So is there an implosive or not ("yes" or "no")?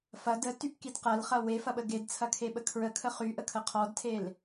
yes